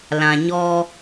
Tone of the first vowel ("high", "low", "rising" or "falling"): low